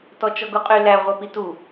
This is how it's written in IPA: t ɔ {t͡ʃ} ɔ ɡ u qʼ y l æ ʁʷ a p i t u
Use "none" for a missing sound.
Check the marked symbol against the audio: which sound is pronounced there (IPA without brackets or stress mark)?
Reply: t͡ʃ